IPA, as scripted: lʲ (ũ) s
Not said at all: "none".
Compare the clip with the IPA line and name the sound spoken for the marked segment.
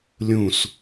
ũ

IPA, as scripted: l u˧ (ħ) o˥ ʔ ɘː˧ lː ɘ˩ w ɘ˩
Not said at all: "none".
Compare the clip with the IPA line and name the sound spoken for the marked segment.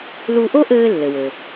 ʔ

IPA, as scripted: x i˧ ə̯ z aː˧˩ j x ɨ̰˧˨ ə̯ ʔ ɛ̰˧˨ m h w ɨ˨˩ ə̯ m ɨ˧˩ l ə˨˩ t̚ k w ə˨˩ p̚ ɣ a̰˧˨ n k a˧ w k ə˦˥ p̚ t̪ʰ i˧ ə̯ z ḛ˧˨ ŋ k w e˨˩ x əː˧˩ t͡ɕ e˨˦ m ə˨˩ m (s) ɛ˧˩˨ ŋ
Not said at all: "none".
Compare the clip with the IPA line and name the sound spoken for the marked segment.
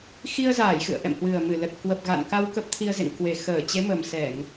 s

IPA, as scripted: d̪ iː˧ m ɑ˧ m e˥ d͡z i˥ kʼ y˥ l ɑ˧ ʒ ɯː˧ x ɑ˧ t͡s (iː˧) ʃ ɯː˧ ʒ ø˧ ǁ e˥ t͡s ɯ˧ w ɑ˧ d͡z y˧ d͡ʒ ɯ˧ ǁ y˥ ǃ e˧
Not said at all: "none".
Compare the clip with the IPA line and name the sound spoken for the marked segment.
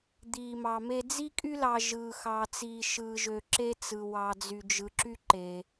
iː˧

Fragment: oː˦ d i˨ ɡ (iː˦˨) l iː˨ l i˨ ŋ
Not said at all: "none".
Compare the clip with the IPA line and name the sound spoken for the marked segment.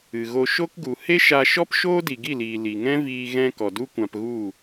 i˦˨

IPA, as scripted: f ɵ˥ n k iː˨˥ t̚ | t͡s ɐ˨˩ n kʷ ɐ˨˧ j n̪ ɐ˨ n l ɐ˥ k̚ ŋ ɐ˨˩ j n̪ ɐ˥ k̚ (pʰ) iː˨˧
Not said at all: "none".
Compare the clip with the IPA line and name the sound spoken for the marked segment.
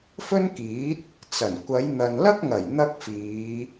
f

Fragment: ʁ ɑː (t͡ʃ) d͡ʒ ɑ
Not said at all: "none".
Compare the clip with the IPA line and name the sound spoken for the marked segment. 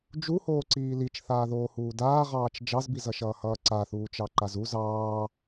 t͡ʃ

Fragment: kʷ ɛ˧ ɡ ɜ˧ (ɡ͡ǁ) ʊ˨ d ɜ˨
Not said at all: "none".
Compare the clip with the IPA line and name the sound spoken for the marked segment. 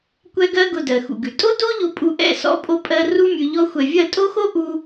ɡ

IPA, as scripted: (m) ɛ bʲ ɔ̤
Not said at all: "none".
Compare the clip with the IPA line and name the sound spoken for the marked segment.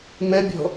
m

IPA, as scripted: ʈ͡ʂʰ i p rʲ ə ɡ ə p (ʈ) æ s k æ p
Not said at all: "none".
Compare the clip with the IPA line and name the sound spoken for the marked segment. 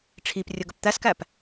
t̪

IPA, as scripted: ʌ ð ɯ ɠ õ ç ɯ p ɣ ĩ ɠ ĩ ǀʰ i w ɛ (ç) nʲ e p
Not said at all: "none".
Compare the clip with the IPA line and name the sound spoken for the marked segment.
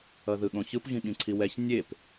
ç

